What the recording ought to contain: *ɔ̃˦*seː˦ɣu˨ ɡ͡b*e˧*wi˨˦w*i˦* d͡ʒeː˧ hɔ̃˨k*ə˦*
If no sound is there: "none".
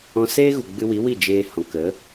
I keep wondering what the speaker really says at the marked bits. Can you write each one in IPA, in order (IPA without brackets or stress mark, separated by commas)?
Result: ɔ̃˧, ɨ˧, i˦˨, ə˨˦